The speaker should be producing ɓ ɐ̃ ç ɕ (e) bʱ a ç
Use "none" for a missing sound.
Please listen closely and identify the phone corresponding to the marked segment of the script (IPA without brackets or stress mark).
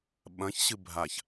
ɨ